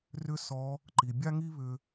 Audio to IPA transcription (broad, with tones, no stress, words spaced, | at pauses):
rʏ˥sɔ˧˥ | ǃi˩bʲa˥ŋi˥ βʏ˧